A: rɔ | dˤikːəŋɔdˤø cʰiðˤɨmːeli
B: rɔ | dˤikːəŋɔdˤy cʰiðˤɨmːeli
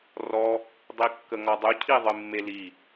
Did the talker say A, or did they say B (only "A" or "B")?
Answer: B